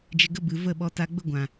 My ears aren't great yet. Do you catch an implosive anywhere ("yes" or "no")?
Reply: yes